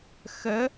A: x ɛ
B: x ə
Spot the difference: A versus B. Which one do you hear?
B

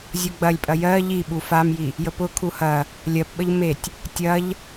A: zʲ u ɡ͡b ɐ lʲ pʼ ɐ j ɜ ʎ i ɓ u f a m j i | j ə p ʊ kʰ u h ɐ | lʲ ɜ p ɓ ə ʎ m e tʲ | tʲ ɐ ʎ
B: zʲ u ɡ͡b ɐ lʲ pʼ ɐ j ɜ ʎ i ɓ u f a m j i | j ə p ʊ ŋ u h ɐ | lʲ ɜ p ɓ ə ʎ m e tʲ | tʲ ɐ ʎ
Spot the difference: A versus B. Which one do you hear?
A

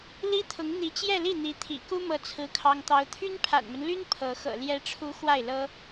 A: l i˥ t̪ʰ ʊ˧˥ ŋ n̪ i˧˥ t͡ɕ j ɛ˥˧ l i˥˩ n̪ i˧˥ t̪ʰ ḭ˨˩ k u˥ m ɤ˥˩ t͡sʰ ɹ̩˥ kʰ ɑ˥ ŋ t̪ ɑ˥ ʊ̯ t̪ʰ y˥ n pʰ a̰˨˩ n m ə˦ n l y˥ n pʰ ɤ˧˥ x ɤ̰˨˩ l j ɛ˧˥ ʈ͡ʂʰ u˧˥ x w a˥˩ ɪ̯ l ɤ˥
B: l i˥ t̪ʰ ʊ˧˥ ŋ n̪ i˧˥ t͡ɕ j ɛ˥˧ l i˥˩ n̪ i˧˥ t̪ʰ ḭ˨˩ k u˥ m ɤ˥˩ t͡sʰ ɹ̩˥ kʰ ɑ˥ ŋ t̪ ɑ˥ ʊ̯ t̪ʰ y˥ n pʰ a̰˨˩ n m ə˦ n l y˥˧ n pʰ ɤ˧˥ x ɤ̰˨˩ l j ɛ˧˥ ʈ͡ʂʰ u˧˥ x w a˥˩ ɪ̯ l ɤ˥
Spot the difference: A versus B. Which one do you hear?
A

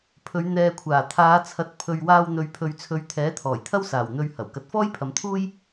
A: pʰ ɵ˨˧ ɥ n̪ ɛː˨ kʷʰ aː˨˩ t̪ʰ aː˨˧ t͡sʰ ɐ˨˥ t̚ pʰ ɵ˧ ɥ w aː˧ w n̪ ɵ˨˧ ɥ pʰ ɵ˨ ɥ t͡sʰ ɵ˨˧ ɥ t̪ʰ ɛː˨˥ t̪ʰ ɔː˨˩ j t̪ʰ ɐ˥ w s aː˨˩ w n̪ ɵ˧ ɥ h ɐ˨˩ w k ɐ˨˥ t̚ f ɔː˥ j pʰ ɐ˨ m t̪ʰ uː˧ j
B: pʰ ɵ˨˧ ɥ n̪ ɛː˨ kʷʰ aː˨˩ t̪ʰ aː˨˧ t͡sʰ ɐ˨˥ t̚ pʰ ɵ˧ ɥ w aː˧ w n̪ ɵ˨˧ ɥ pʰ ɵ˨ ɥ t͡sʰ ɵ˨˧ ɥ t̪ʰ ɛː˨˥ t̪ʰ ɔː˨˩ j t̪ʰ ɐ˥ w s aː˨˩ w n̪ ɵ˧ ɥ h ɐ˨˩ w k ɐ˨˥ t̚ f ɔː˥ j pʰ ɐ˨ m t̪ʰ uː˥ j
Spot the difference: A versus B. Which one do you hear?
B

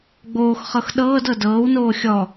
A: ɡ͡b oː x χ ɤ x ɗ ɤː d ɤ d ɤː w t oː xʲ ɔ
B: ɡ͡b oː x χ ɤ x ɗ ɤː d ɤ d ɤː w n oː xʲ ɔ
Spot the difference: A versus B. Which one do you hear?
B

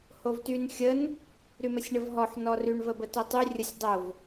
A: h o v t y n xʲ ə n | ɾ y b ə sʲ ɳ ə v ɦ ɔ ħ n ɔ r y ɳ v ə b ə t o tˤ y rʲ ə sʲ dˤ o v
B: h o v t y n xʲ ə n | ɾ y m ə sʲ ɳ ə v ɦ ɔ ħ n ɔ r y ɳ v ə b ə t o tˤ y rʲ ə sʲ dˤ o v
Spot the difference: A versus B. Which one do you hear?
B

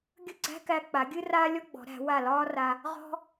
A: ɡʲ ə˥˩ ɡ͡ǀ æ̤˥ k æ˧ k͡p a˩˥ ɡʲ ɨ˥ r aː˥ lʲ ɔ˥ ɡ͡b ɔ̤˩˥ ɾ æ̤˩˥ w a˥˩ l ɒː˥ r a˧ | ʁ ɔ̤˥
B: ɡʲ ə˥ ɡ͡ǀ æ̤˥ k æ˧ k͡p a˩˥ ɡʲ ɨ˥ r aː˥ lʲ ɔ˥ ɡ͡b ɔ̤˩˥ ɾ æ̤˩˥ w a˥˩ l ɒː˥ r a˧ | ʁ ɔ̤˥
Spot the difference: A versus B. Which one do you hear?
B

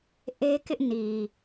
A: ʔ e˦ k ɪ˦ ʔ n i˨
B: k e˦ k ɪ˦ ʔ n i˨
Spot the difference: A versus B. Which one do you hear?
A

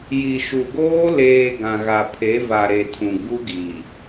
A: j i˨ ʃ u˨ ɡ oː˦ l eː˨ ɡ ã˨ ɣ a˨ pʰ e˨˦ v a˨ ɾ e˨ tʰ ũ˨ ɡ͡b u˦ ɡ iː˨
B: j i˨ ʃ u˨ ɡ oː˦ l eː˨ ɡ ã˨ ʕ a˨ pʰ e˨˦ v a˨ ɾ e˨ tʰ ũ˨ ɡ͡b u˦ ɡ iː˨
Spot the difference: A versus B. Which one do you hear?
A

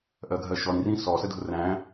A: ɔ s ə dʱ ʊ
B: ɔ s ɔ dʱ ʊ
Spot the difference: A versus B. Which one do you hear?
A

